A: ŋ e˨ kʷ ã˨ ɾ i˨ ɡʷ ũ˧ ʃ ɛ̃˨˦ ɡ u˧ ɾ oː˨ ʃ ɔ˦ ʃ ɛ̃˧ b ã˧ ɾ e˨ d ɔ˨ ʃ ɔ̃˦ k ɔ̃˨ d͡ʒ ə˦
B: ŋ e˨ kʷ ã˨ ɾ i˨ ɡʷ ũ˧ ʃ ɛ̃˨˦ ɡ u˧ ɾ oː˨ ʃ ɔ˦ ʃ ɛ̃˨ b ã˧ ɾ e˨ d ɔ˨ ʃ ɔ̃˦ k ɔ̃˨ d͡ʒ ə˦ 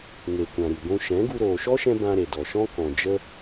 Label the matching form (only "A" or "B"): A